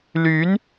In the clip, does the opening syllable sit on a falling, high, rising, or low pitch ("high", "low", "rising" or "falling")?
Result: rising